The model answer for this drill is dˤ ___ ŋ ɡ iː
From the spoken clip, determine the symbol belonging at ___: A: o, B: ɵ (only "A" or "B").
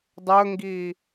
B